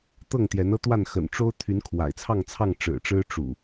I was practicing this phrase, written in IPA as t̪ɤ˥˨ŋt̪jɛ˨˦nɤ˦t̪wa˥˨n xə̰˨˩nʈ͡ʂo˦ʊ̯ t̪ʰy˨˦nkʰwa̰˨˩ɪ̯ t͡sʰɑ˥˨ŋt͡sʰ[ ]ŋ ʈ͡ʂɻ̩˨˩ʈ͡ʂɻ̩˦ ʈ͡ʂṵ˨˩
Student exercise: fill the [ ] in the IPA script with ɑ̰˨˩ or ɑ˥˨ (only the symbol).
ɑ˥˨